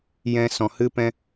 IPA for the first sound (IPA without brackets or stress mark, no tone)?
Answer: j